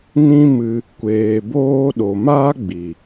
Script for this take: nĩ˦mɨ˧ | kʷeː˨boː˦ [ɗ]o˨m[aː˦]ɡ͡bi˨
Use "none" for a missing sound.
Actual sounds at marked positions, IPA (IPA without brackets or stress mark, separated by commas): ɗ, aː˦